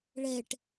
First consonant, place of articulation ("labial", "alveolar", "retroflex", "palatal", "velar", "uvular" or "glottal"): retroflex